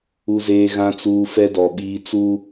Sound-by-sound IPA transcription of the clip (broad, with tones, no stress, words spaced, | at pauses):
u˨zeː˨ ɣã˨t͡suː˨ fɛ˦dɔ˨ɓiː˦ t͡su˦